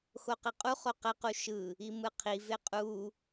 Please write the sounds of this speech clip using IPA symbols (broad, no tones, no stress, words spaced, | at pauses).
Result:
xoqeqʼuχo qɛqu ʃɯ | imɯqʰi veqʼu